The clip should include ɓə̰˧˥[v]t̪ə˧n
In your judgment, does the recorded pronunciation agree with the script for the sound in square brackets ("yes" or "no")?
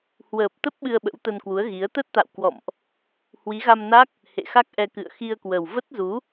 no